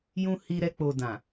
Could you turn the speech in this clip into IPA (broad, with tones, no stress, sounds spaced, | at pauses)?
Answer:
j ũ˧ h i˧ ɾ ɛ˧ k͡p o˨ d ã˨